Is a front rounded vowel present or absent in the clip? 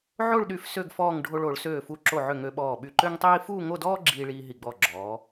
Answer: present